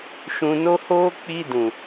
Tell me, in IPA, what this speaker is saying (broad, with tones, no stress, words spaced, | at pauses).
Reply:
ʃũ˧no˦hoː˦ k͡pi˦dũ˨